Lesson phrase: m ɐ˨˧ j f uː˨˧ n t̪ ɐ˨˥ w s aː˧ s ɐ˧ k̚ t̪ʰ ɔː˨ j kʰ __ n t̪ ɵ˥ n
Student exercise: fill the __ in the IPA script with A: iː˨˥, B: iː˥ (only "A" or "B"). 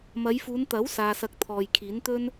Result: A